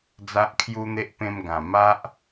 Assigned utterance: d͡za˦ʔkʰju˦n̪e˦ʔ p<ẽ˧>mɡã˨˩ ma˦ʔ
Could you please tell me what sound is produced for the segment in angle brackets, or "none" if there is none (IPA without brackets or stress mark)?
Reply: ẽ˧